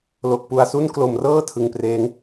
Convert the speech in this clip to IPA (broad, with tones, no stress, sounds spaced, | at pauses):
l o˨˩ k̚ p u˨˩ a̯ s u˥˩ n k l o˨˩ m r ɤː˥˩ tʰ ɯ˧ ŋ p r eː˦˥ ŋ